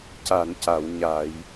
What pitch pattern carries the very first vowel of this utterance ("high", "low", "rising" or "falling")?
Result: low